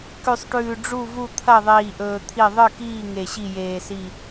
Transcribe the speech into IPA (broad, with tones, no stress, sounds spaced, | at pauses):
k ʉ˨˩ sˤ ʈ ʉː˨˩ ɖ͡ʐ u˦˨ v u˦˨ t̪ʰ ɐ˦˨ ðˤ iː˨˩ ʔ ɵː˨˩ t̪ʰ i˦˨ ðˤ ɨ˦˨ k iː˦˨ ŋ e˨˩ ɕ i˦˨ j eː˨˩ s i˦˨